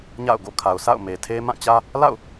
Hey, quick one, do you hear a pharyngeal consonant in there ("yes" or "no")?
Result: no